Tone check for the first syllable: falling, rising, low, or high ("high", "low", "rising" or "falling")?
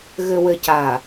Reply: low